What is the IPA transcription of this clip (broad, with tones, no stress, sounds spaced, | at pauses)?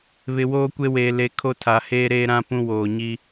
β ɪ˨ w oː˦ kʷ e˦ w eː˨ l e˨ kʰ o˦ tʰ a˨ h eː˦ ɾ eː˦ ɾ ã˦ p ũ˦ w oː˨ ɲ i˦